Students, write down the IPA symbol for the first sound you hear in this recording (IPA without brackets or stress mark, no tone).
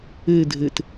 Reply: e